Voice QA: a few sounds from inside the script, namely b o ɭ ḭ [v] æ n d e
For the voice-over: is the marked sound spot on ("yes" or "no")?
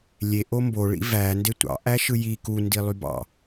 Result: yes